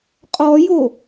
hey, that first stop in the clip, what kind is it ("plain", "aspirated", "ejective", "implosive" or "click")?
ejective